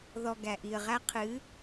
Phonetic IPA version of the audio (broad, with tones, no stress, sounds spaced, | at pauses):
ð ɔ˨ ɡ æ˨ ʔ i˨ ə̯ ʁ æ˦ qʰ ɨ˨˦